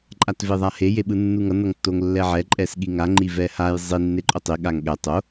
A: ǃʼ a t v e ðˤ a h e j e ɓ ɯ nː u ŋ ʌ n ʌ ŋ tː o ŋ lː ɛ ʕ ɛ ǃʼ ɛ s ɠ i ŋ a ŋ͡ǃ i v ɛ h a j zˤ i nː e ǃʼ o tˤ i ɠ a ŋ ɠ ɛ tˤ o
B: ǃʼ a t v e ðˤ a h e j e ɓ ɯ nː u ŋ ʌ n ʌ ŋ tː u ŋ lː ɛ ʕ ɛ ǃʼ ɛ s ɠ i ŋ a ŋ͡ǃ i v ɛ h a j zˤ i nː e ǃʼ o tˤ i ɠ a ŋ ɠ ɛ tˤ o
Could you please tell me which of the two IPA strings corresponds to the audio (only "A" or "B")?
A